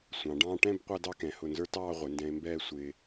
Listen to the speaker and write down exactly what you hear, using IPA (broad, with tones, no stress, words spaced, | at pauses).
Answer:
sʷɑ̃˩˧ɖɑ̃ː˥ ʈɛ̃˥˧b qʷæ˥dɑ˥kɛ̃˩˧ hʊ˧˩nzə˞˥tɑː˥˧ ʁʷɪ˩˧ndɛ̃˧e̯mbɛː˥˧ sʷɪː˧